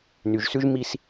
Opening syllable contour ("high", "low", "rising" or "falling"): low